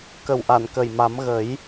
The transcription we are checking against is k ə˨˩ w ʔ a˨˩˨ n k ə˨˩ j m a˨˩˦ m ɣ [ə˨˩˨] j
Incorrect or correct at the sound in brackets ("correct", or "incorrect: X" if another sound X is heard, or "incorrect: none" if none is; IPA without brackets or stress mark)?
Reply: incorrect: ə˨˩˦